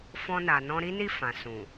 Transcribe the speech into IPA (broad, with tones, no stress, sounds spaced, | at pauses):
f ɔ̃˧ n a˨ n ɔ̃˧ ɾ i˦ n i˦˨ f ã˨ s ũ˨